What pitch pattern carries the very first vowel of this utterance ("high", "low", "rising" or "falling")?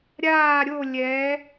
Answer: falling